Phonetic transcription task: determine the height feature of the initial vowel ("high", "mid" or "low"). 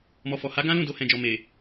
mid